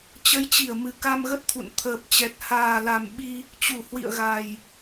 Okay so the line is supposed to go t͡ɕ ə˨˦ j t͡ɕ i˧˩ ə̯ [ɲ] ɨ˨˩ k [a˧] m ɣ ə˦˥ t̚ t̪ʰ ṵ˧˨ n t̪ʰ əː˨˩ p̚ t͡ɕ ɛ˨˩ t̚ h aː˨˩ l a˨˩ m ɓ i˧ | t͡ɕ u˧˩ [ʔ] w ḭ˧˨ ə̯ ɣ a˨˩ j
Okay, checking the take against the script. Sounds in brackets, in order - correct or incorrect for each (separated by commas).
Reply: incorrect, correct, incorrect